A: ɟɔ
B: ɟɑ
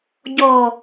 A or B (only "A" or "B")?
A